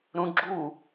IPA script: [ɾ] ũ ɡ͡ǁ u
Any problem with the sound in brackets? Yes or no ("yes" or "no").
no